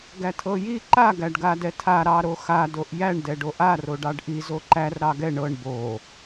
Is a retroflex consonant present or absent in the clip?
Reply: present